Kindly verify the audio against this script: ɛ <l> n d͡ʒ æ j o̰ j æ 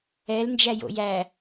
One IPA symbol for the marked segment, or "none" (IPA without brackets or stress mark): l